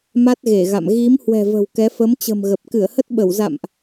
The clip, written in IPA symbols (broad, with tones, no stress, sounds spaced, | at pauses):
m a˦˥ t̚ ɣ e˧˩ ɣ a̰˧˨ m ɣ i˨˦ m h w ɛ̤˨˩ v ə̤˨˩ w k ɛ˨˦ f ə˨˦ m t͡ɕ ə̤˨˩ m ɣ ə˨˩ p̚ k ɨ˧˩ ə̯ h ə˦˥ t̚ ɓ ə˧˩ w z a̰˧˨ m ʔ